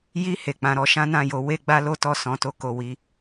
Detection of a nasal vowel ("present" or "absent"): present